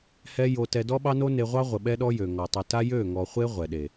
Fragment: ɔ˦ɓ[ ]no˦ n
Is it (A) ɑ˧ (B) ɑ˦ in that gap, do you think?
B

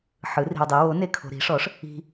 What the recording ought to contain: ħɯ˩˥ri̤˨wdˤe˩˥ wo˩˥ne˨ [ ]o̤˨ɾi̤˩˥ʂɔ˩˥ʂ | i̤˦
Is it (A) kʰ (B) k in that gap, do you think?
A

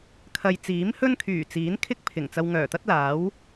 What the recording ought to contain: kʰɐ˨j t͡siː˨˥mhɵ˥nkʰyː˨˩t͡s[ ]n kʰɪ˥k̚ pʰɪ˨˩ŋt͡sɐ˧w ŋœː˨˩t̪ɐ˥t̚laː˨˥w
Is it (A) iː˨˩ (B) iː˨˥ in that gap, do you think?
B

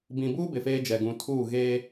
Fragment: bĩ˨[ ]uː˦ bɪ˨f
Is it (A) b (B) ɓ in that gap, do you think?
A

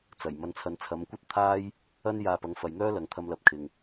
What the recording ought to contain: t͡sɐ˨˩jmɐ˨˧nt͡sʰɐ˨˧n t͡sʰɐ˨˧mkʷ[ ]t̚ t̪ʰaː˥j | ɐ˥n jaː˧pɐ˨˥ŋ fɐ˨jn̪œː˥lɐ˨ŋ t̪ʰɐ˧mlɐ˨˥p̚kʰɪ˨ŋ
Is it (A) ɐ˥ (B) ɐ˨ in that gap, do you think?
A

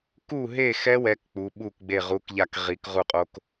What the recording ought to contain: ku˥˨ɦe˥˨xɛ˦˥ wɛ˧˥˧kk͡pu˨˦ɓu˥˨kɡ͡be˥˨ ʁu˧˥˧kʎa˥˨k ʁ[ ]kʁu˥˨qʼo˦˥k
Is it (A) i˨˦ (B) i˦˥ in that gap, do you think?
A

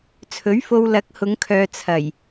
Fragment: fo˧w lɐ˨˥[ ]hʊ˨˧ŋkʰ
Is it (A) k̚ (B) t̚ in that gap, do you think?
A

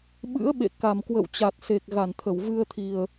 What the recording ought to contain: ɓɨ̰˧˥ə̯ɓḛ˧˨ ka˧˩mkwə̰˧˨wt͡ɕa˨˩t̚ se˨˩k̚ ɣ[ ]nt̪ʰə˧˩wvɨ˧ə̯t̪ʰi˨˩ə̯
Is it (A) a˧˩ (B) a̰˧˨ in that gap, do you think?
A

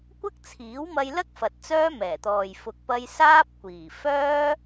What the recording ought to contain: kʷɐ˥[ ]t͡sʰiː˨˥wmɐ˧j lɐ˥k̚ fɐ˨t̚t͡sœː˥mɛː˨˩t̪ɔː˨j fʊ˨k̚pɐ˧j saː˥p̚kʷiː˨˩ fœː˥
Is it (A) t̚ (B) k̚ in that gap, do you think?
B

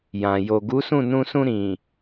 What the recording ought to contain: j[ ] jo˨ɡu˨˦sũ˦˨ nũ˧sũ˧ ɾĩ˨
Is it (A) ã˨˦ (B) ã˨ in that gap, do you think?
B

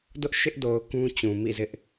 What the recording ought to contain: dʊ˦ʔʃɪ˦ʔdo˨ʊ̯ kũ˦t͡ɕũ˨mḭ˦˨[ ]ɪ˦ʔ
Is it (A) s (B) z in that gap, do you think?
B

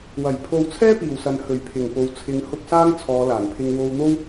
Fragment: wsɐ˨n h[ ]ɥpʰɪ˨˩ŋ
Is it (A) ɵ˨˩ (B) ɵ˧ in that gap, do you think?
A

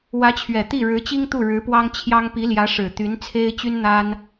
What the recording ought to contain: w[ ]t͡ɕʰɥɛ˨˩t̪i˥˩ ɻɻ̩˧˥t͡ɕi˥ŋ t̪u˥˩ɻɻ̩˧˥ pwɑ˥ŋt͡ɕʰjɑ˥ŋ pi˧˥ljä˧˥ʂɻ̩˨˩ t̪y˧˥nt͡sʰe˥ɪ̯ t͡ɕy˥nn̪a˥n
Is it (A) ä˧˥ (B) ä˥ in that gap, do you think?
A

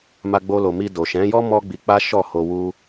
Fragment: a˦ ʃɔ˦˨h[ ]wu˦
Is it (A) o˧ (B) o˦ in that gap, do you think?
A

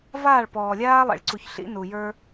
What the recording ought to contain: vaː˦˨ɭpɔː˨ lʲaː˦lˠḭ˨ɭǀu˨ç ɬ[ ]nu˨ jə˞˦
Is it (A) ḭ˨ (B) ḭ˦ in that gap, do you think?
B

